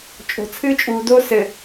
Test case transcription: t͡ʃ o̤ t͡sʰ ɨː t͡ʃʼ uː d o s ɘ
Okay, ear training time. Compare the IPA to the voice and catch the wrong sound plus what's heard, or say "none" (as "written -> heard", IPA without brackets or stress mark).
t͡ʃ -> t͡ʃʼ